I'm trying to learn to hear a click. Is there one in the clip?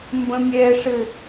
no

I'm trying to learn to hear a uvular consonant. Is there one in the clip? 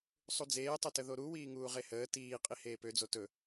yes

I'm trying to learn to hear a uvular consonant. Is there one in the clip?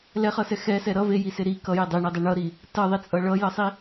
yes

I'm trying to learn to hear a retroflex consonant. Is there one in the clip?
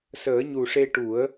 yes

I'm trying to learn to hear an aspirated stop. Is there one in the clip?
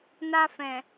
no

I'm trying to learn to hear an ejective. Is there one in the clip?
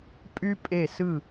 yes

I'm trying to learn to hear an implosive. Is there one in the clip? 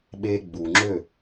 yes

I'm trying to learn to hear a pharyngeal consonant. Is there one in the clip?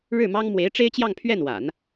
no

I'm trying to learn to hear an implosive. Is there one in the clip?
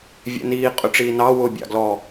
no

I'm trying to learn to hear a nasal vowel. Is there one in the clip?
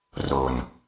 no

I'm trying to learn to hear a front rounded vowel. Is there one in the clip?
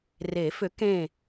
yes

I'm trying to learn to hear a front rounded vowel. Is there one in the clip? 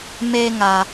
no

